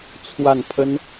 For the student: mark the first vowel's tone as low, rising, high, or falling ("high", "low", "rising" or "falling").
falling